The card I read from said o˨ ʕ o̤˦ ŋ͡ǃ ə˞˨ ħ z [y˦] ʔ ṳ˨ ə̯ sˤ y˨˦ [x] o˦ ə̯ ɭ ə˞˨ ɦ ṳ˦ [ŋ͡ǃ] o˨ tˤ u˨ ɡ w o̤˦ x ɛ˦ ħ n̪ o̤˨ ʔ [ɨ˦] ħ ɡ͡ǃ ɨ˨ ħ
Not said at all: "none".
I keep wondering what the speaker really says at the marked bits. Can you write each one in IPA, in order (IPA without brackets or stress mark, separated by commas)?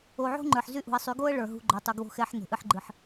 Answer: y˦, ɡ, ɡ͡ǃ, ɨ˦